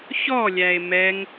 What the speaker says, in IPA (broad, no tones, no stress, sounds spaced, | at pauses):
ç ɔ lʲ æ e̯ m ɛ ŋ